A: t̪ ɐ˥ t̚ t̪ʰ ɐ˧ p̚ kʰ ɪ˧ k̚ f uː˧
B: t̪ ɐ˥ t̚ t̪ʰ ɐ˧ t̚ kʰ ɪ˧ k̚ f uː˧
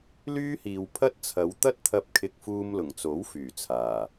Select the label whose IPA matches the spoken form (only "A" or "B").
A